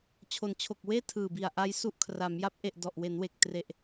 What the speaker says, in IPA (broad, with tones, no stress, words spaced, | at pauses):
t͡ɕʰo˩˦nt͡ɕʰo˨˩k̚weː˥˩ tʰɯː˨˩bi˨˩a̯ʔa˦˥j su˦˥ʔkʰra˩˦mja˦˥p̚ ʔe˨˩ʔ dɔ˨˩ʔwe˩˦nwe˨˩k̚ tre˨˩ʔ